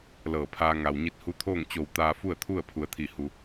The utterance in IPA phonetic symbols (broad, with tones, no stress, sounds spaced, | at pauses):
l ɤː˧˩ pʰ aː˧ ŋ a˩ w ɲ i˧ t̚ h u˧˥ t̪ʰ oː˥˨ ŋ t͡ɕ o˧˩ w t̪ aː˧ f u˥˨ ə̯ t̪ʰ u˥˨ ə̯ pʰ u˩˧ ə̯ t̪ʰ i˧˩ h u˩